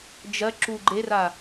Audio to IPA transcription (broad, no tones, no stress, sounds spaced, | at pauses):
d͡ʒ ɜ ǁ u ɡ͡ǃ e r a